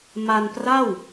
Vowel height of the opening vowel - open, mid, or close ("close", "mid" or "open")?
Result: open